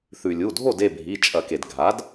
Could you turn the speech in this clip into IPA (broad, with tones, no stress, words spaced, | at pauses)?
θʉ˩ lʲu˩˧˩dʱo˥˨d e˥˨bʱi˩˧˩ t͡ʃʼɐ˧˩˧ke˩d ɡʱa˩˥d